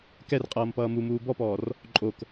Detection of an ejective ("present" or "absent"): present